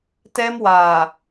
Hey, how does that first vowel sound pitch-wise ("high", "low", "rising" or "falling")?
high